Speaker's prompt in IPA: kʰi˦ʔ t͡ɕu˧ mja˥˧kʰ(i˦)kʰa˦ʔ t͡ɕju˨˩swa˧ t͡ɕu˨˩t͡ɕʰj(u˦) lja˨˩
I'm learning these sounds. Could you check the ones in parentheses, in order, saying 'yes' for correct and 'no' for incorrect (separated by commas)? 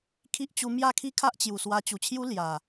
yes, yes